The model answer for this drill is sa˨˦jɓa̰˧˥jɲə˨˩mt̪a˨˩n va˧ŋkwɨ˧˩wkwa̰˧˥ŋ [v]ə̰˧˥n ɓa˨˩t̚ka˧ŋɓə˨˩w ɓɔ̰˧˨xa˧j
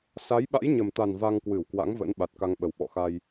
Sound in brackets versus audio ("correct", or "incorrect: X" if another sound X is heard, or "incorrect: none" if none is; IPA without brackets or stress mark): correct